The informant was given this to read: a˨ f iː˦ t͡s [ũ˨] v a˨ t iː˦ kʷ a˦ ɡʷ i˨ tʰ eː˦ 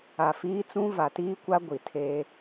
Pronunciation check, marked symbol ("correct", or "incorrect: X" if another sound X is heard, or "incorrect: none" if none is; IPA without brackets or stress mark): incorrect: ũ˦